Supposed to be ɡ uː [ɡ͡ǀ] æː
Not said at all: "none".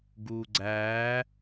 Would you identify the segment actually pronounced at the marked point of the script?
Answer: ɡ͡ǀ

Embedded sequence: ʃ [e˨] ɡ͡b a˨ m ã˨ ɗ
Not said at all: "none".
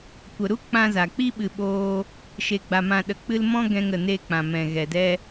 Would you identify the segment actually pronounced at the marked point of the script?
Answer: e˨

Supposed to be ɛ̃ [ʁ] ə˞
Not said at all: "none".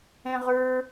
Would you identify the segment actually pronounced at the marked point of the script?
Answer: ʁ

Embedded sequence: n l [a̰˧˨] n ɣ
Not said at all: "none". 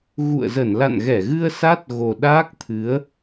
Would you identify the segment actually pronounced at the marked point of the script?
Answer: a̰˧˨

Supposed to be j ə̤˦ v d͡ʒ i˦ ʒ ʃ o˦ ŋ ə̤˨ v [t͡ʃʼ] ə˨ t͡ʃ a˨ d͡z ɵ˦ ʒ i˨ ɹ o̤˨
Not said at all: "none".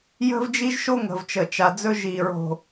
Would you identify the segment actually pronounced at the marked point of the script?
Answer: t͡ʃ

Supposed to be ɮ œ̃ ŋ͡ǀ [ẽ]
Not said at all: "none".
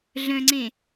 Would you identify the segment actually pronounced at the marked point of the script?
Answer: ẽ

